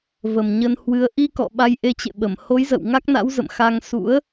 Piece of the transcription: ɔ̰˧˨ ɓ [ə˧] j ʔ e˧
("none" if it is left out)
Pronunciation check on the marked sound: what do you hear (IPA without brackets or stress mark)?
a˧